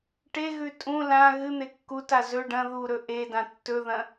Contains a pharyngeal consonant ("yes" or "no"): no